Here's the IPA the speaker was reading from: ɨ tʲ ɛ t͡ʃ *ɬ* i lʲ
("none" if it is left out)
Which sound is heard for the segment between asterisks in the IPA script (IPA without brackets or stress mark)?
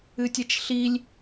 ɬ